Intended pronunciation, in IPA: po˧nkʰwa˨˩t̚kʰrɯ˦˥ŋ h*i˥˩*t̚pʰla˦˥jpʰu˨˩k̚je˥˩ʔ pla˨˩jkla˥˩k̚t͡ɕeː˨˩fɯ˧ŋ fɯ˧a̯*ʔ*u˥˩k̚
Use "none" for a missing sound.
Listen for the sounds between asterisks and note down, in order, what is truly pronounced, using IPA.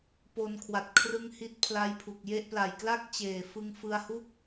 i˦˥, h

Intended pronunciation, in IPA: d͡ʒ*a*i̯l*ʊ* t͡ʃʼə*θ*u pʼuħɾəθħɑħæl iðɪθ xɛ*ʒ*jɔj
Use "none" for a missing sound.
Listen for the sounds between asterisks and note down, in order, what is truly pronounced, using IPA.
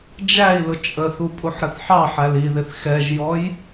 æ, ʊ, θ, ʒ

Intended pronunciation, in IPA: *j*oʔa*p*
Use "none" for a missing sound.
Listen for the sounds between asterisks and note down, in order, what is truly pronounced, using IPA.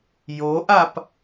j, p

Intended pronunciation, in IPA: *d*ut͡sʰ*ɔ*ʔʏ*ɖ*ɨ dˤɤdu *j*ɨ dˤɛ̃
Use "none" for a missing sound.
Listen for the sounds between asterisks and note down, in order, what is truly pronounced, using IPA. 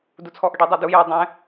d, ɔ, ɖ, j

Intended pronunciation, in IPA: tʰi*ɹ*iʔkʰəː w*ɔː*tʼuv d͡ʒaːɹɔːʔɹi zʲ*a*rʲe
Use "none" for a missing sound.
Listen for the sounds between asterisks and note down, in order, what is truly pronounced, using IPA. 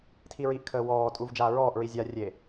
ɹ, ɔː, a

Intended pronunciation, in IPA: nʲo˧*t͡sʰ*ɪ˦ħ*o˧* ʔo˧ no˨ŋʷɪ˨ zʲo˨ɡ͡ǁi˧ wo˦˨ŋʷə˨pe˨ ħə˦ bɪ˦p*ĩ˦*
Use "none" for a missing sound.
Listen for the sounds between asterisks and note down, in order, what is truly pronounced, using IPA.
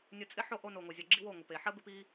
t͡sʼ, o˦, i˦

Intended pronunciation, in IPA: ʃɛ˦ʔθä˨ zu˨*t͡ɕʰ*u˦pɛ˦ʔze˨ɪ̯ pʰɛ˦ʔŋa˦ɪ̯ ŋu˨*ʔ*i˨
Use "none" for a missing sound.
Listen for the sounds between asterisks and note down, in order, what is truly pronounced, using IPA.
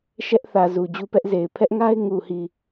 d͡ʑ, h

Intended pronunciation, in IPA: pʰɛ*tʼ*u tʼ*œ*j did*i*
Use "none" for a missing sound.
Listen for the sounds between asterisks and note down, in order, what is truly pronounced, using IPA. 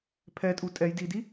tʼ, ɛ, i

